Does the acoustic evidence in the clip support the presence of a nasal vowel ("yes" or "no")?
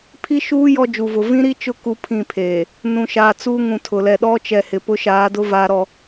yes